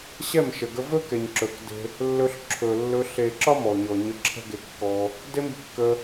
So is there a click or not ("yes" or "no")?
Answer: yes